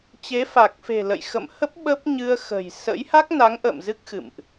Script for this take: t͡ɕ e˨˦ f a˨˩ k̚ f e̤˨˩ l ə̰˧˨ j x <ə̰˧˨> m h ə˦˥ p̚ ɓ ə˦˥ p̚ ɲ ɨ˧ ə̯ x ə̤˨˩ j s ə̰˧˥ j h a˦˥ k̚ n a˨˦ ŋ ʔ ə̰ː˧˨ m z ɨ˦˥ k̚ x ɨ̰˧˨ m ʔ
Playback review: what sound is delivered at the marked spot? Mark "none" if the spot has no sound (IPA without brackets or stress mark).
ə̰˧˨